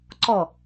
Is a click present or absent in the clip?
present